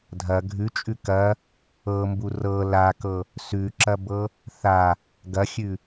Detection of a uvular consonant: absent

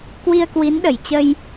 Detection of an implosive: present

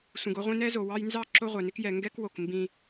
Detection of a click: present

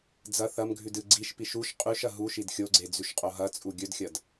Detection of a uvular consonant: present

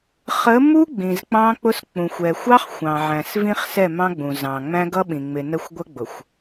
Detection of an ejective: absent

